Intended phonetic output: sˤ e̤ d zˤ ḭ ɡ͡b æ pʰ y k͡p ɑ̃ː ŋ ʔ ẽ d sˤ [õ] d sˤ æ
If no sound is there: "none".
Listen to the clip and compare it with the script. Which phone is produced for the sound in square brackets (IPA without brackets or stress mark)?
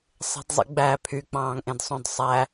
õ